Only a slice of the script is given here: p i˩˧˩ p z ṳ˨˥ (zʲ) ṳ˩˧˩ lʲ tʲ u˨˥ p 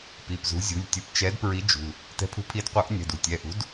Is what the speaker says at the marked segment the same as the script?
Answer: yes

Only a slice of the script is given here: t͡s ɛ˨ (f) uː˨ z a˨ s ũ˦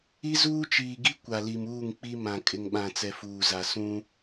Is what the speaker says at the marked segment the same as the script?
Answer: yes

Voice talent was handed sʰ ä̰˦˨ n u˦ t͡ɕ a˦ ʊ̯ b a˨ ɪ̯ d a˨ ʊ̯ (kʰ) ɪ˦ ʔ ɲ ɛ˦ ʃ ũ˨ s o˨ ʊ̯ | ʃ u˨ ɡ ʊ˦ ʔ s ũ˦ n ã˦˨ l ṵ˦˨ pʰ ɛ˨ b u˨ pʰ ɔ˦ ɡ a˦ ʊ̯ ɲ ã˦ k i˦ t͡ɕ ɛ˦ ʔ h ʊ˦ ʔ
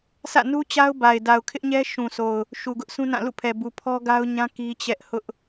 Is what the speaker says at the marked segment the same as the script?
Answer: yes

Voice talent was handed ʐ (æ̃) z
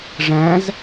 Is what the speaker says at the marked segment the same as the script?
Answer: yes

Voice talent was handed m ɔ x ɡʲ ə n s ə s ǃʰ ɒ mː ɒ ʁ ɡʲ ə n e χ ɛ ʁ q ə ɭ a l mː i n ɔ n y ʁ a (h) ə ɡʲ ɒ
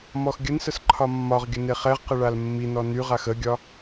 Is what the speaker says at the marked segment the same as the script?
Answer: no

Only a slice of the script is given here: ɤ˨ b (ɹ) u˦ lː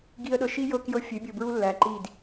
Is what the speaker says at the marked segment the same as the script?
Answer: yes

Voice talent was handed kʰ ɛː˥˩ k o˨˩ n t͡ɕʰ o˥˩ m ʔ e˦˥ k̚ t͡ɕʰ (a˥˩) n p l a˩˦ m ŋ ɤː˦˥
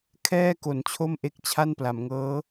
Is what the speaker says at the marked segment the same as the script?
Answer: yes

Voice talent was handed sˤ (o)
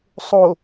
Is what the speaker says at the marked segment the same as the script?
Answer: yes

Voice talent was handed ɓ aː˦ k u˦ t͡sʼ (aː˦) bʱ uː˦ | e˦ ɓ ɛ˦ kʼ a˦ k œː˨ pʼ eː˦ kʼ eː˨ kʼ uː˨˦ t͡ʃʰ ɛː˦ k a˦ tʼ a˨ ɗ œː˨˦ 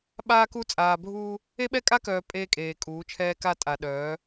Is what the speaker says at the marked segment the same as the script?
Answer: no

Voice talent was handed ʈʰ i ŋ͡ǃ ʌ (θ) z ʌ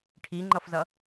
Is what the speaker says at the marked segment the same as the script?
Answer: no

